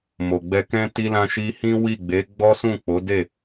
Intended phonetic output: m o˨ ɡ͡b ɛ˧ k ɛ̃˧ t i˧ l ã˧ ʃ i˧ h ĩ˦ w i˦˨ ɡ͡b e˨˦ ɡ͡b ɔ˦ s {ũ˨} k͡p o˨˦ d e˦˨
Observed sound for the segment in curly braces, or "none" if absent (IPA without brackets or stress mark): ũ˦˨